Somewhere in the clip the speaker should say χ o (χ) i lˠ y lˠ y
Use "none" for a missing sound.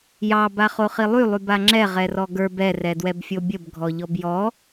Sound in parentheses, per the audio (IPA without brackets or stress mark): χ